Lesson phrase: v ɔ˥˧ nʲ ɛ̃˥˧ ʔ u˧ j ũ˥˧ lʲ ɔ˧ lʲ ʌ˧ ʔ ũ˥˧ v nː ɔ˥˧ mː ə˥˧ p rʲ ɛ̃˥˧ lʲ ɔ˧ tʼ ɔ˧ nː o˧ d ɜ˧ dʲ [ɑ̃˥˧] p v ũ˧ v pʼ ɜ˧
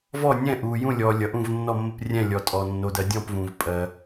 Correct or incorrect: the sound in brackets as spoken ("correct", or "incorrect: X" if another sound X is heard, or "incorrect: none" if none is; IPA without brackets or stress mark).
incorrect: ɔ̃˥˧